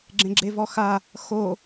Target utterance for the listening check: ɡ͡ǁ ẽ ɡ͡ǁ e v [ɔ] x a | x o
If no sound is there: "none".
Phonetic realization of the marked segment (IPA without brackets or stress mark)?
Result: ɔ